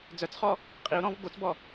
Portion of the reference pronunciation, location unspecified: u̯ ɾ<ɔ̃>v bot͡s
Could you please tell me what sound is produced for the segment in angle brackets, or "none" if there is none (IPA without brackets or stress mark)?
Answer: ɔ̃